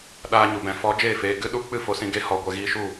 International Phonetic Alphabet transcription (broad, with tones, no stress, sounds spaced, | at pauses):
ɗ aː˦ ɲ u˨ b ɛ̃˧ f ɔ˨˦ d͡ʒ eː˦˨ f eː˧ ɡ ɨ˦ ɗ u˦ k͡p ɨ˦˨ f o˧ s ĩ˧ ɡ e˦ h ɔ˨ ɡʷ ɛ˧ ɣ iː˦ ʃ u˦˨